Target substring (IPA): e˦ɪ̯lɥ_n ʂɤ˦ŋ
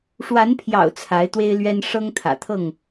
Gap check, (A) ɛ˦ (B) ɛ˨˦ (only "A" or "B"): A